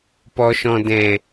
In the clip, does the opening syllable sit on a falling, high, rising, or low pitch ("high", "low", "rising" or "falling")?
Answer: low